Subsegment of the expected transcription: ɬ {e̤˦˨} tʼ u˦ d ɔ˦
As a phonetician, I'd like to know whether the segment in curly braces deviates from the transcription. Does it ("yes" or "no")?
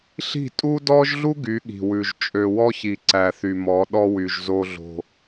yes